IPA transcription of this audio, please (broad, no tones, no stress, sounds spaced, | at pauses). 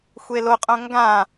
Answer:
xʷ e l o qʼ õ ŋ ɡ ã